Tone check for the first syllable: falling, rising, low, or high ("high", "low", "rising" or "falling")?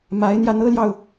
rising